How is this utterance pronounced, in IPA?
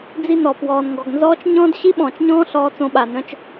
d͡z i˦˨ n ɔ˨ p w ɔː˨ n ŋ ɡ ɔ˨ ɡ n z ɔː˦ t͡ʃ ɲ ɔ̃ː˦ d ɕ i˦ ɓ ɔ̃ː˨ t͡ʃ ɲ ɔ̃ː˦ ɬ ɔː˦ t͡s õ˦ ɓ a˨ n œ̃˦ t͡ʃ

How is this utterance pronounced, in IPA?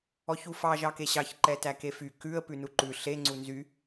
ɔ ç u f ɑ ʒ ɑ k e ɕ ɑ ç ǃ ɛ t æ k e f y k ʉ ə̯ p ʉ n u ǃ ʉ ɬ e ŋ͡ǀ u n z y

